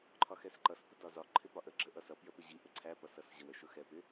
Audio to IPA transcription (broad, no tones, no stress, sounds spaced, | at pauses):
ǃʰ ɒ x ɛ s ǃ ʌ s p ʊ d ɒ z ɒ ǃʰ ɪ p ɒ ʔ ə ɡ͡ǁ ə ʔ ʌ s ʌ p j ə p ɪ ʑ i ʔ ə ǀʰ æ p ʌ s ʌ s ʑ ə w ə ʃ ʊ x ɛ p ɪ